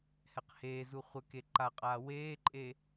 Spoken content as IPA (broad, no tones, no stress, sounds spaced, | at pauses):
h ɛ q h eː z u χʷ ə k e ǃ a qʼ aː w eː ǃʼ e